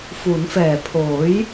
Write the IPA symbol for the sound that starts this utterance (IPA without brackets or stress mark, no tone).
f